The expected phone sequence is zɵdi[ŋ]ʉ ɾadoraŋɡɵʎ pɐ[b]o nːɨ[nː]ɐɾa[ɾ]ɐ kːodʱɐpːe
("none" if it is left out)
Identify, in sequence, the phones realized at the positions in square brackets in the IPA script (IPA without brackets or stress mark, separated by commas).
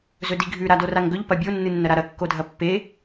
ɡʱ, bʲ, nː, ɾ